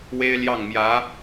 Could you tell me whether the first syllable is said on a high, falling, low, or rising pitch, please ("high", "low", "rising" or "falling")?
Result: high